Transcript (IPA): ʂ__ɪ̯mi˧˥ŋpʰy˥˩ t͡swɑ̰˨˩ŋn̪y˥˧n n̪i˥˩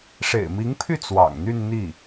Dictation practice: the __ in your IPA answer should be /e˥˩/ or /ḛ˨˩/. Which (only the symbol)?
ḛ˨˩